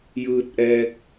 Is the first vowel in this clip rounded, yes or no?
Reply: no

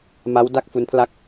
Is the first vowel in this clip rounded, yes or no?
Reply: no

